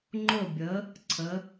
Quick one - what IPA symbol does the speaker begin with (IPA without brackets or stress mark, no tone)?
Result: ŋ͡ǃ